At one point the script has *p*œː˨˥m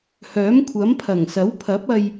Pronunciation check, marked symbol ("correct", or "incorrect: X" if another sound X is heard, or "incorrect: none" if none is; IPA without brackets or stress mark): incorrect: h